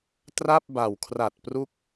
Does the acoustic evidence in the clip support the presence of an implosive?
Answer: no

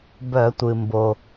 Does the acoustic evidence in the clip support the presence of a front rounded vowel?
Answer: yes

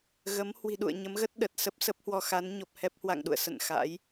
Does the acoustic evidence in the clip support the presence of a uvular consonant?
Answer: no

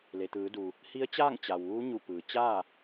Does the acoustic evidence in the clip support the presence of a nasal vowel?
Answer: no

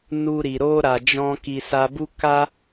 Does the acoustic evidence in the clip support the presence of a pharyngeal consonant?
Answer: no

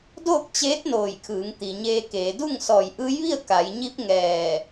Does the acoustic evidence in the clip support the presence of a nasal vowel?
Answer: no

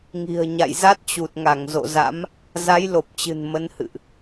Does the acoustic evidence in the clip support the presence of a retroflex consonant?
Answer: no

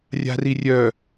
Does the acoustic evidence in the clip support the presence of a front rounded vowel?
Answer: yes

